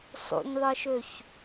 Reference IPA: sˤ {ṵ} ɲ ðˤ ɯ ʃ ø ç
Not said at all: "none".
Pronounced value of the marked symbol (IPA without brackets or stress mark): ṵ